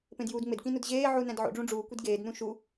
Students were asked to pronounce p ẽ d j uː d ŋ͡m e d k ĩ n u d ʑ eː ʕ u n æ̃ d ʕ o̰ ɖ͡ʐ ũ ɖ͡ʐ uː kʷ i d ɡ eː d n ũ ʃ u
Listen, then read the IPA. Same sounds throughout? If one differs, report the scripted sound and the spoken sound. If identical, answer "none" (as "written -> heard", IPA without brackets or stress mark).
none